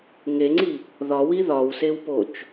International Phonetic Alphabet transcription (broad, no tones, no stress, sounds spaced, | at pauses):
ŋ e ŋ͡ǀ i | ð ɒ w i ð ɒ w s e w p o t͡ʃ